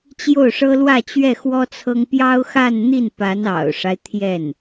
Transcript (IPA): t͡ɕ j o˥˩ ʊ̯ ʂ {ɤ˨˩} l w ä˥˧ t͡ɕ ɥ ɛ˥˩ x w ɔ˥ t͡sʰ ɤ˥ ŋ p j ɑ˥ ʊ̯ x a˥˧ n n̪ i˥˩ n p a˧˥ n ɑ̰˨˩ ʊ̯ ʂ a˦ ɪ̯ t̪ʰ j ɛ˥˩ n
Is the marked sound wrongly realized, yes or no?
yes